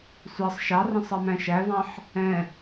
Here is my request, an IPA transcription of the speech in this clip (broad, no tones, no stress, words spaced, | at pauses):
sʷɑsˤ ʃɑrə̃ sˤɑmæ̃ʃævɑ̃ħ | ɛ̃